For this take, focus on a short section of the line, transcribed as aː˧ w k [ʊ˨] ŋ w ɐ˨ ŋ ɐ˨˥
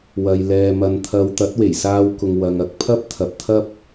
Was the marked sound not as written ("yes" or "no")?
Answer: no